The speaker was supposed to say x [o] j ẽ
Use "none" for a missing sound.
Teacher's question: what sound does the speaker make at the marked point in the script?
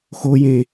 o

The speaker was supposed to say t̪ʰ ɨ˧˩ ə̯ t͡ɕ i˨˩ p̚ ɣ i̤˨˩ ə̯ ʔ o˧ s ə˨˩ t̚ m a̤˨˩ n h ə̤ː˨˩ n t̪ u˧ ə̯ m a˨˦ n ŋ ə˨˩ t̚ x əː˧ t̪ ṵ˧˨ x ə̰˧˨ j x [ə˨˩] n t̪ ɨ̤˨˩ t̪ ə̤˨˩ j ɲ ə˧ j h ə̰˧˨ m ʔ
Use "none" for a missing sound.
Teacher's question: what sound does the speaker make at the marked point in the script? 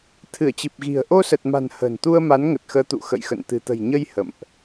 ə̰˧˨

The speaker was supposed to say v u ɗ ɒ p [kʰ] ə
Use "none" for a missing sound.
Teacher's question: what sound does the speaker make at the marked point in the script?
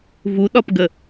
ɡ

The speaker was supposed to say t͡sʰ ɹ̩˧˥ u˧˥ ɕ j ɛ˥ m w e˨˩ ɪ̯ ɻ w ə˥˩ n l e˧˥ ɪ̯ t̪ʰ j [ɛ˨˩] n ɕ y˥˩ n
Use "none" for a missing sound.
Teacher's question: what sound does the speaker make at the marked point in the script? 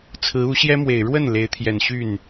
ɛ˨˩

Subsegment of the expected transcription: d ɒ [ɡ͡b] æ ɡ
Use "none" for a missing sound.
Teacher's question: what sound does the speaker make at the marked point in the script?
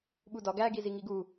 ɡ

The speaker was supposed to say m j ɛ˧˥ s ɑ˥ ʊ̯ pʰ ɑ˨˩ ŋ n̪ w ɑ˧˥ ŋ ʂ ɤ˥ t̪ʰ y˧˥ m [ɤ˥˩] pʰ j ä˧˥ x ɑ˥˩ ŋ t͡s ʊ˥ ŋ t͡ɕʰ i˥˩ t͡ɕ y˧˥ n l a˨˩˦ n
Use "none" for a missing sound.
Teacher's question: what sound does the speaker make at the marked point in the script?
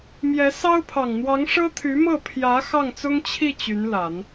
ɤ˥˩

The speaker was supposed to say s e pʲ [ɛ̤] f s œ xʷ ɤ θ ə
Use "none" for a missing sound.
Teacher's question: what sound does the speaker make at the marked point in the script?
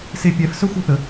ɛ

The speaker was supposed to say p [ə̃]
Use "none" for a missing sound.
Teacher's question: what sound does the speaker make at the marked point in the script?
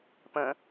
ə̃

